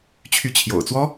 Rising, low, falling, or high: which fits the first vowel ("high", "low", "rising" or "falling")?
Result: rising